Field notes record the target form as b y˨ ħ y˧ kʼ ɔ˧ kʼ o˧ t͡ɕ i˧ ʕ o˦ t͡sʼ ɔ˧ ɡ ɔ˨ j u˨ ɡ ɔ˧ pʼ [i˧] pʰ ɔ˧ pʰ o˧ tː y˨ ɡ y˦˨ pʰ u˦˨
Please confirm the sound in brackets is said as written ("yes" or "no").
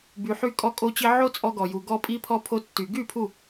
yes